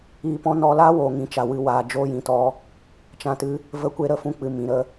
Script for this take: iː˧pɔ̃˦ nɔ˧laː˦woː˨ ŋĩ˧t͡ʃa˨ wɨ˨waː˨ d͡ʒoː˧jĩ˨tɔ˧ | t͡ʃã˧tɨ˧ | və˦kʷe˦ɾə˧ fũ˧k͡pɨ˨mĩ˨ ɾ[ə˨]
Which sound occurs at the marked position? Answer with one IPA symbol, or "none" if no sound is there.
ə˦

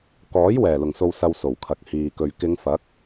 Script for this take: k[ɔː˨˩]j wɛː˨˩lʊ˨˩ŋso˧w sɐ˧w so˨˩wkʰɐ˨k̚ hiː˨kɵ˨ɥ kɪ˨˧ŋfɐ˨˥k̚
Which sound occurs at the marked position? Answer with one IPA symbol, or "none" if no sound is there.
ɔː˨˥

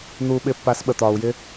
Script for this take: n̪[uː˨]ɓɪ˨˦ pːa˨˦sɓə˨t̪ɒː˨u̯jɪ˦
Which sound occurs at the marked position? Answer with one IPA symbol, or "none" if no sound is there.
uː˨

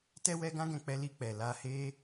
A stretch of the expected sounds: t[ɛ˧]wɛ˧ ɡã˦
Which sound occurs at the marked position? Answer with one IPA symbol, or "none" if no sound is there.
ɛ˧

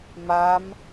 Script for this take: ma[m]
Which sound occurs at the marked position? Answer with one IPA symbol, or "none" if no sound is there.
m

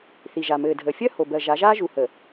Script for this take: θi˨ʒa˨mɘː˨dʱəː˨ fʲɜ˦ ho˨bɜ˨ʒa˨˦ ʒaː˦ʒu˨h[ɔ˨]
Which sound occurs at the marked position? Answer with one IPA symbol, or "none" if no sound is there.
ə˨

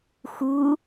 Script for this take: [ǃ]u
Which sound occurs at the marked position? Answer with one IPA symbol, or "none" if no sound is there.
x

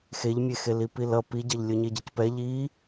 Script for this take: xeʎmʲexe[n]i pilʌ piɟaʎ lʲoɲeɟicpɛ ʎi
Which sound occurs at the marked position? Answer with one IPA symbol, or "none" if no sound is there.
l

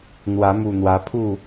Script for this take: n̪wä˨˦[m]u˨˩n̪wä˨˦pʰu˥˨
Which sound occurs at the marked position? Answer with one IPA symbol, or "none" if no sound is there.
m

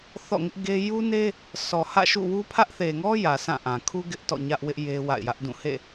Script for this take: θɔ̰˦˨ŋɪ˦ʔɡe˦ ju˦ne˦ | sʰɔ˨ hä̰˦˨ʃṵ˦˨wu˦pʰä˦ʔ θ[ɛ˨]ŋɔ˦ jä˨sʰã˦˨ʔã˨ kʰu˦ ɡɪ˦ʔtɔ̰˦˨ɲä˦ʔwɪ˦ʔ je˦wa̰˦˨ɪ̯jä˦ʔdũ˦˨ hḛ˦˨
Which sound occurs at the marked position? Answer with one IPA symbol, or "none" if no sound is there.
e˨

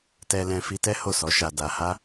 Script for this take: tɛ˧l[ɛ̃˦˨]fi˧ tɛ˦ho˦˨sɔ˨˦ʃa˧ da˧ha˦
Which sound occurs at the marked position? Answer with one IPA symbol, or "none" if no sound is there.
ɛ̃˧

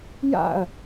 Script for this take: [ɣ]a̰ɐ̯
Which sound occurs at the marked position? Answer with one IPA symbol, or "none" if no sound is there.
j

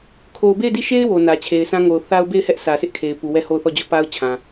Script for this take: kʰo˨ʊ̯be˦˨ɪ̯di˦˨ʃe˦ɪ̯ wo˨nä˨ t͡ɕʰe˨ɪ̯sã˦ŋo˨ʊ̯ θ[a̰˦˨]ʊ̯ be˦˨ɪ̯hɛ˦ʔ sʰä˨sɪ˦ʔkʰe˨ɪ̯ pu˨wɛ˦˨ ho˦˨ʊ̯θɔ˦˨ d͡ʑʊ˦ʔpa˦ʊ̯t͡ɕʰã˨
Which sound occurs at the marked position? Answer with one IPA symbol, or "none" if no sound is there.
a˦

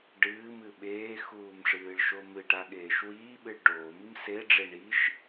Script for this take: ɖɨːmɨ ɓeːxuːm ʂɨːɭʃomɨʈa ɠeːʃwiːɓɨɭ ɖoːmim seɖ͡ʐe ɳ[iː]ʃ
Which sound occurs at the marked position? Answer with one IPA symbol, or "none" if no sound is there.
i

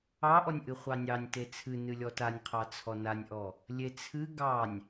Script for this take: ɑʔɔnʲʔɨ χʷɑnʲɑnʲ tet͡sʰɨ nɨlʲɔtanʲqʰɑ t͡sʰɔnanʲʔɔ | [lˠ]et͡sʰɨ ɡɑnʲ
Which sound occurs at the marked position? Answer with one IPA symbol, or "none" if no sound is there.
lʲ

